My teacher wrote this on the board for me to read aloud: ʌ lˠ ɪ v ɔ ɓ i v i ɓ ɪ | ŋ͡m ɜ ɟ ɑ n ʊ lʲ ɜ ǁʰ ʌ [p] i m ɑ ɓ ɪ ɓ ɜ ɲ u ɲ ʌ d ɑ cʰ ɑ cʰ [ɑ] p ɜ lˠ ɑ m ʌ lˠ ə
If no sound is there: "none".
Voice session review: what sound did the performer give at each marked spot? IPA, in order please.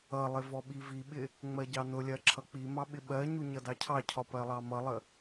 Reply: k͡p, ɒ

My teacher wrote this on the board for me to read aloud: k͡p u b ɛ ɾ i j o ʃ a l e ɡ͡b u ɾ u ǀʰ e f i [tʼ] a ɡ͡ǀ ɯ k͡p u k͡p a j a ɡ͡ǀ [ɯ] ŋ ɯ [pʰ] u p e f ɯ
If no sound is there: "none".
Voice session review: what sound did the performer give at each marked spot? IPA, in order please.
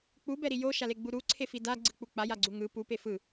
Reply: d, u, p

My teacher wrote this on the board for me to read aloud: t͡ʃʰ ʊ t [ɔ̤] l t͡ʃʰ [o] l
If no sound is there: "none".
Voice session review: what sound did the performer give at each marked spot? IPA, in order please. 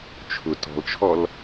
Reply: ɔ̤, ɔ

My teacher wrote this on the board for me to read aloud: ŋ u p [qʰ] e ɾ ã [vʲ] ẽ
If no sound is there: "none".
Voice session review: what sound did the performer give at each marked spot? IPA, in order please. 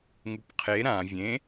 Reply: qʰ, vʲ

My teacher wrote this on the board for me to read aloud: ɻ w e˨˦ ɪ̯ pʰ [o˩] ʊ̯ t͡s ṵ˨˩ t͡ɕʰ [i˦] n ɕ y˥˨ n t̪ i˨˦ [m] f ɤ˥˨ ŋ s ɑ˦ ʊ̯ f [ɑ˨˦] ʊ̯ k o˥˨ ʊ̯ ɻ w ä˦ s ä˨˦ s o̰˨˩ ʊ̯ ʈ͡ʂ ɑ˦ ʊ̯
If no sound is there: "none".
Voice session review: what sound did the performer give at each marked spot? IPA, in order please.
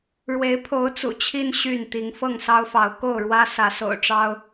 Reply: o˨˦, i˦, ŋ, ɑ˨˦

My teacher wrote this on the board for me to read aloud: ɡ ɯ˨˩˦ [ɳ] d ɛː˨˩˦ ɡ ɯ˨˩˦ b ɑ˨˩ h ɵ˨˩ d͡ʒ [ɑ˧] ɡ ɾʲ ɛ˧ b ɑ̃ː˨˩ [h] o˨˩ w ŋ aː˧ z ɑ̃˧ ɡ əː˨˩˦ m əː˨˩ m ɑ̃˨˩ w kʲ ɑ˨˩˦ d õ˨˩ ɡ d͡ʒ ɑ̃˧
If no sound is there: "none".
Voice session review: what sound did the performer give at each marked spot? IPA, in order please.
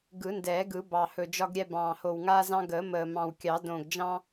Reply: n, ɒ˧, h

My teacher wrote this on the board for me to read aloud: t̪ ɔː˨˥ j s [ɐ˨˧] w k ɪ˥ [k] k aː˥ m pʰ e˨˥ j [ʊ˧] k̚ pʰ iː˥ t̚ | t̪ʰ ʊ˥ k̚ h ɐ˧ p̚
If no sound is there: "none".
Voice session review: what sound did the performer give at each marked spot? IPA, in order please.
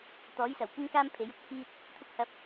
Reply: ɐ˨˩, ŋ, ʊ˧

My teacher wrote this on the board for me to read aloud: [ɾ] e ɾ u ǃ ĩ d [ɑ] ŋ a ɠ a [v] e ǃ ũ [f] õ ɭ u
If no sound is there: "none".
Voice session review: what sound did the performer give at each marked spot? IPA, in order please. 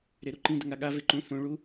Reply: ɾ, ə, v, θ

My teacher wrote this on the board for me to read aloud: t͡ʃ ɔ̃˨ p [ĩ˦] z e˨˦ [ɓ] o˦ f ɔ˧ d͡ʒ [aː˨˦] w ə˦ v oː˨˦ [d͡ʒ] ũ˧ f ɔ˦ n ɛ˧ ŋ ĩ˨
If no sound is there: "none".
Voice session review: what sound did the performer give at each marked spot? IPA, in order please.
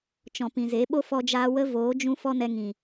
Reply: ĩ˨, ɓ, aː˧, d͡ʒ

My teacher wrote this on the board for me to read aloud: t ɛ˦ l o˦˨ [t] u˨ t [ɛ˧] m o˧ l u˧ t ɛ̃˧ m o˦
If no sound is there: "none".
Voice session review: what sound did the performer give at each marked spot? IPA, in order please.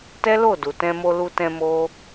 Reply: d, ɛ̃˧

